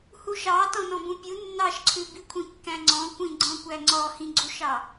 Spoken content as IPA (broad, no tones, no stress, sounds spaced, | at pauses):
h u ʃ ɑ t ɔ̃ n ɔ̃ b ũ pʲ u nː ɑ ʃ ǀʰ ʉ b i kʷʰ ĩ kː æ̃ ŋ͡ǀ ɔ̃ kʷ ĩ ɡ͡ǀ ɔ̃ kʷ æ ŋ͡ǀ ɔ h ĩ ɡ͡ǀ u ʃ ɑ